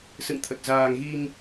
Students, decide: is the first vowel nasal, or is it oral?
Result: oral